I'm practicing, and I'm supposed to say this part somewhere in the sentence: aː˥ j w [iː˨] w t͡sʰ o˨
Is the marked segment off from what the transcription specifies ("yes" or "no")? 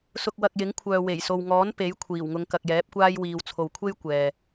no